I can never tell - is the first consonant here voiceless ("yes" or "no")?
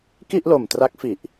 yes